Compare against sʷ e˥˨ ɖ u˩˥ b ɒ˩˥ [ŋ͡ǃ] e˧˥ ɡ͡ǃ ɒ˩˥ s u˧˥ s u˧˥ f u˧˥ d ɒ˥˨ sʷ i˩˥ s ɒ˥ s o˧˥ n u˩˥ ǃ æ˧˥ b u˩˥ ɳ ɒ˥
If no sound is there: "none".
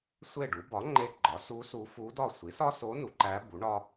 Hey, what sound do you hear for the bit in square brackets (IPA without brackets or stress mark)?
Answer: ŋ͡ǃ